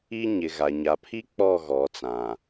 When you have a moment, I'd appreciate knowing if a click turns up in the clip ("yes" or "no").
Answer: no